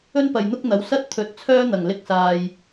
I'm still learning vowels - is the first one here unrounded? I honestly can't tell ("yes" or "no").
no